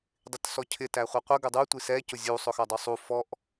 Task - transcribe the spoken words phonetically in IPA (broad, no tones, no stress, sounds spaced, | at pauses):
dˤ ɪ t s ɔ cʰ ɪ t æ χʷ ʌ qʷ ə ɡ ə dˤ u tʷ i s ɛ c ʊ zʲ u sˤ ʊ x ʌ dˤ u sˤ u f ɔ ʔ